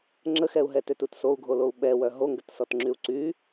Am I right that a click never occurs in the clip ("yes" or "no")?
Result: no